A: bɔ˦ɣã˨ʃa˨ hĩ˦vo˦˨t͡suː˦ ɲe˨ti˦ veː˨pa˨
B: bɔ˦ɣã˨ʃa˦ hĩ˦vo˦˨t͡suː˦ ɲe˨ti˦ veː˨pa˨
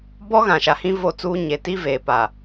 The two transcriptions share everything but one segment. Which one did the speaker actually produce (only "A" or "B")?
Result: A